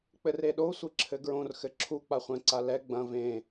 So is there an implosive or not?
yes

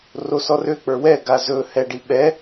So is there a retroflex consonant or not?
yes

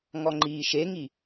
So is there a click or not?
yes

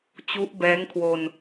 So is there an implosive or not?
no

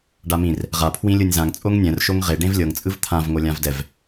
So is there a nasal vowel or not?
yes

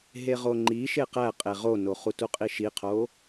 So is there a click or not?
yes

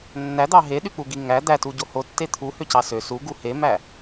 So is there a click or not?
no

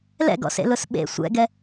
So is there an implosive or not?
yes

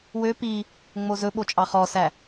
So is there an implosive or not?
yes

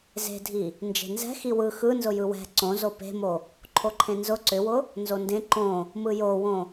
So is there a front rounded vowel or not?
yes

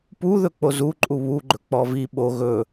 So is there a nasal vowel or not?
no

